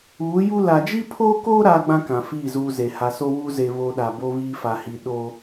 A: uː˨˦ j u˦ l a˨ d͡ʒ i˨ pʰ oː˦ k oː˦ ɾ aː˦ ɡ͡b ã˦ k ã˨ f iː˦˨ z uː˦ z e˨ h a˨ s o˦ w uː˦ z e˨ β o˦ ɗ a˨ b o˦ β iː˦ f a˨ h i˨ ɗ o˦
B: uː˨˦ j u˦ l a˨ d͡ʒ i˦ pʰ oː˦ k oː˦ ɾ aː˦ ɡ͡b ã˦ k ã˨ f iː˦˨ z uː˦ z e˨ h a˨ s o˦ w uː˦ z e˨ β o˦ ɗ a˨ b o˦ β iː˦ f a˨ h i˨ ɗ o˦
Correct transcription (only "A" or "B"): B